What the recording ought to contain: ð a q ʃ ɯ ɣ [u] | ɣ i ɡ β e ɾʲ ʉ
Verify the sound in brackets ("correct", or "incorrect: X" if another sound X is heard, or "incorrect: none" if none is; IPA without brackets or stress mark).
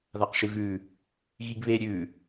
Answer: incorrect: ʉ